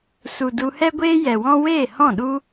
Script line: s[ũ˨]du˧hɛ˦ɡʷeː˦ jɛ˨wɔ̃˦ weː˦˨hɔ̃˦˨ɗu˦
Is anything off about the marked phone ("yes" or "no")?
yes